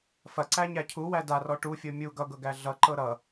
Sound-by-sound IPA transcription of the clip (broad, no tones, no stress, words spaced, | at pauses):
fɐǀæɲæ cʰuwæ darɔ ʈufʲɤ mʲu ɡʌɡɤɡæ ɮʌǃɤ ɾʌ